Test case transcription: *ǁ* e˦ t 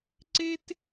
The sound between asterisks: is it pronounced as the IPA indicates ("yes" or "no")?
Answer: no